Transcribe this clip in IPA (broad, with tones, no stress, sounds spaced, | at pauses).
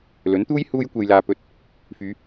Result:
l ɵ˨˥ n t̪ uː˥ j h uː˧ j kʷ e˨ j l aː˨ p ɵ˨˥ t̚ | f yː˨˧